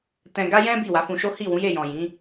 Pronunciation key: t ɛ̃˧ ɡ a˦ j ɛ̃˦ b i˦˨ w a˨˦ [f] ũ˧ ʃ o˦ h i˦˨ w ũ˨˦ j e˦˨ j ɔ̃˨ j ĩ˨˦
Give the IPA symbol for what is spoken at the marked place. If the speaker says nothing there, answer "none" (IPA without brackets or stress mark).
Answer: f